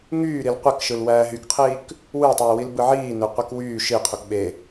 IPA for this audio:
ŋ yː ɾ i l qʷ e k ʃ ɯ l w æː ɦ y k qʰ iː k | w ɯː tˤ w y w i l b ɯ ʕ iː n ø qʷ i k w yː ʃ i qʰ u k ɓ e

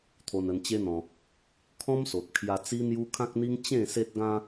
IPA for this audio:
t̪ʰ o˧ n ə˧ n t͡ɕ e˦ n̪ ɔ̃˧ | kʰ ɔ̃˦ m s o˨ t̚ kʰ j a˧ t͡s i˦ n̪ j u˦ kʰ ã˦ k̚ n̪ i˦ ŋ t͡ɕ ẽ˥˧ s e˦ t̚ ɡ ã˦

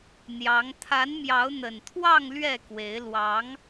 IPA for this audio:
n̪ j ɑ˨˦ ŋ t̪ʰ a˨˦ n m j ɑ˨˦ ʊ̯ n̪ ə˨˩ n t̪ʰ w ɑ˥˨ ŋ l ɥ ɛ˥˨ k w e˨˦ ɪ̯ l w ɑ˨˦ ŋ

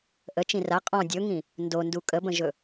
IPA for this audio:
ʔ ə t͡ʃ ĩ r a qʼ ɔ̃ dʲ ɵ ŋ ĩ | n d o n d u kʼ ə b ə̃ ʒ ɵ

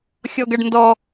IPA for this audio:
xʲ ɔ ɡ ɐ ɖ n d ɔ

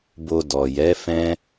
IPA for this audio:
b o˧ d ɔ˨ j ɛ˨˦ f ɛ̃˦

